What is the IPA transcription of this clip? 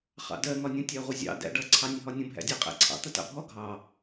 χ ɑ̰ d ɜ ŋ ɒ nʲ ə̃ tʲ æ ʁʷ ɪ zʲ ɑ̰ d æ̰ ɖ ʌ ǀʰ ɑ nʲ ə ɦ ɒ nʲ ə̃ bʱ æ̰ dʲ æ qʼ æ̰ ǀʰ ɑ̰ t̪ ə t ɑ̰ bʱ ɔ ɡʱ ɑ

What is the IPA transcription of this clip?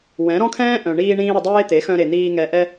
w ɛ̃˨˦ ɾ ɔ̃˦ kʰ ɛ̃ː˦ ʔ œ̃˨ ɳ iː˧ ɳ ĩː˧ ɾ ə˧ dˤ eː˦ t̪ e˨˦ x œ̃˧ ɾ e˨ n̪ iː˧ ŋ ɛ˨ ʔ ɛ˧

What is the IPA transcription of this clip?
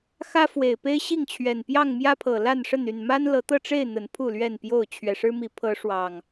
x ä˦ f w e˨˩ ɪ̯ p e˦ ɪ̯ ɕ i˥˨ ŋ t͡ɕʰ ɥ ɛ˨˩ n p j ɑ˥˨ ŋ m j ä˦ pʰ ɤ˨˩ l a˥˨ n ʂ ə˥˨ n y˥˨ n m a˦ n l ɤ˨˦ t̪ ɤ˥˨ ʈ͡ʂ e˥˨ ɪ̯ n̪ ə˨˦ n pʰ u˥˨ l ɥ ɛ˥˨ n p j o˥˨ ʊ̯ t͡ɕʰ ɥ ɛ˨˩ ʂ ɻ̩˦ m i˨˦ pʰ ɤ˨˦ ʂ w ɑ˨˩ ŋ

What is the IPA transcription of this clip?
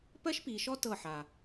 p ɜ˦ ʃ p i˨ ʃ ɔ˦ t ɤ˦˨ ħ a˨

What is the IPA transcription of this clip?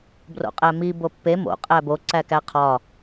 b r o̰ qʼ æ m i b o pː e m o̰ qʼ æ b o ǀ æ k æ qʰ ɒ

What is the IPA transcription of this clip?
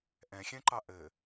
ʔ ɛ̃ xʲ ɛ̃ ǃ ɑ ʔ ɘ

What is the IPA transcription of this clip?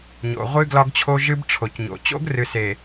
ɲ o̰˨ ʁʷ ɨ˦ ɡ l ɒ˦ ɡ t͡ɕʰ o˦ ʒ ɨ˦ b ʈ͡ʂʰ o˨ c ɲ o̰˨ t͡ɕ o̰˦ ɡ r ɨ˨ s e˨

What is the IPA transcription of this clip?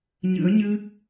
ɲ ɨ̰˧˥ ə̯ ɲ ɨ˦˥ k̚

